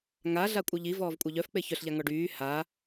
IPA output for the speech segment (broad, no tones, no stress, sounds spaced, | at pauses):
ŋ a ɮ a kʷʼ œ ʎ i v ɔː v kʷʼ œ ʎ œ f k͡p e ç œ ɬ ʎ a ŋ ɔ ɖ yː h a